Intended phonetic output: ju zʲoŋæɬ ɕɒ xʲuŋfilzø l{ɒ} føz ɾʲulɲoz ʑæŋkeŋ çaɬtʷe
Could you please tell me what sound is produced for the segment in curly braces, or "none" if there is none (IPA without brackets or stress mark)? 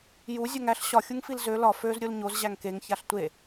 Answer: ɒ